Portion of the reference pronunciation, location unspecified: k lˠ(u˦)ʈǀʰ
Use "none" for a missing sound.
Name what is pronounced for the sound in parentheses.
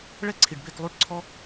u˦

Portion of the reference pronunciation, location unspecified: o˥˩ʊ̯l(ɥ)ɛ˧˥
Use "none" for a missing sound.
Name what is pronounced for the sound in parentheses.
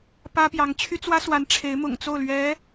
ɥ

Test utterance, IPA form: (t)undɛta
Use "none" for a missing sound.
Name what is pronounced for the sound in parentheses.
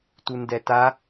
t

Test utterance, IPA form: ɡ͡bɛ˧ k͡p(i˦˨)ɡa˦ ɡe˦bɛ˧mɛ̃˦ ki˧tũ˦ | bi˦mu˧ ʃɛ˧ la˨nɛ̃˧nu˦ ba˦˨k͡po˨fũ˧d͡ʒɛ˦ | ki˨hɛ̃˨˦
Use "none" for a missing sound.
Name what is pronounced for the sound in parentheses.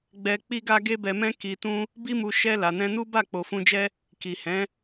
i˦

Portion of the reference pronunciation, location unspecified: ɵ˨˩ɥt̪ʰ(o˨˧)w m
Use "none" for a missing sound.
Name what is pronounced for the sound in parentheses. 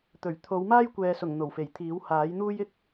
o˨˧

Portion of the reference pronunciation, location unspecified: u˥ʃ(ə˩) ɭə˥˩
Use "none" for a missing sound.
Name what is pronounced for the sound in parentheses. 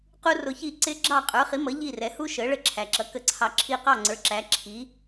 ə˩˥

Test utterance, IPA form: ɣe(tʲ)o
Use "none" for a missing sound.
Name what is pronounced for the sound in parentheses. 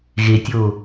tʲ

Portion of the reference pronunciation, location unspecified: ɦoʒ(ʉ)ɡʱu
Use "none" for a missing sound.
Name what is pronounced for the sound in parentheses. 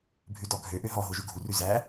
ʉ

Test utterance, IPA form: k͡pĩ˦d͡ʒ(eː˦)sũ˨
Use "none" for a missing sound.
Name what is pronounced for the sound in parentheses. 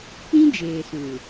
eː˨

